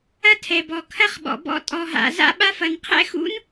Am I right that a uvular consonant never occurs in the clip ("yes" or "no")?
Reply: no